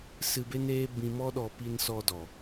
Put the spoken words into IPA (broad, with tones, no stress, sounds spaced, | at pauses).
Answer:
s ɨ˧ b e˦ n eː˦ b ĩ˧ m ɔ˦ ɗ ɔ˧ p i˧ n s ɔ˧ d ɔ˨